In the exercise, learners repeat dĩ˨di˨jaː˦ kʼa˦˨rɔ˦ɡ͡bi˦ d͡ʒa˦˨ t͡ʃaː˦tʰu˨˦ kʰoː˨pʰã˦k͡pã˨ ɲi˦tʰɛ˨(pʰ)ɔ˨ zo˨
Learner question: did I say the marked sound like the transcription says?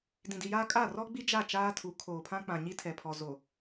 yes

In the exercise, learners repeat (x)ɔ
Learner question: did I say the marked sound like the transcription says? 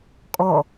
no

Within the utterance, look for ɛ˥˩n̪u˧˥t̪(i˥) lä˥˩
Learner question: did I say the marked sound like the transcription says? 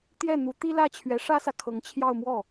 yes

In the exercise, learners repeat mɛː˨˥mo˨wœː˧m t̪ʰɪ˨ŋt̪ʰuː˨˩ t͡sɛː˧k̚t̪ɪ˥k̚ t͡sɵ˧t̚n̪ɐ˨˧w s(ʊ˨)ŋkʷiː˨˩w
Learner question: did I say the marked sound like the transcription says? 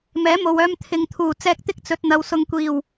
yes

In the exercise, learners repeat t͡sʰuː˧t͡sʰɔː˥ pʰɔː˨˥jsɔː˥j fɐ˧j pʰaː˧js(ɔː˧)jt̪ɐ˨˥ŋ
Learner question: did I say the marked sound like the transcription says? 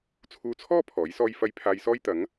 no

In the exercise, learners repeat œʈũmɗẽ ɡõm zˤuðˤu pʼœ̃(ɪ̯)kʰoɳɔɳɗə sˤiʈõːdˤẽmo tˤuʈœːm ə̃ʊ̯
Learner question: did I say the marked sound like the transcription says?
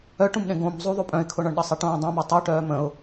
yes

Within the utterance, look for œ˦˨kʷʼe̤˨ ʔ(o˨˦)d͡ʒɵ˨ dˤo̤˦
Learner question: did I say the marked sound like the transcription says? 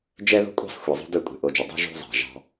no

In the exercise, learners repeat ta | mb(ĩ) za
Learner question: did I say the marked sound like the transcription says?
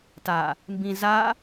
yes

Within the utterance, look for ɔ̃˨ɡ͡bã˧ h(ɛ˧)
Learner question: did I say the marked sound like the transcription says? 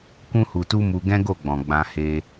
no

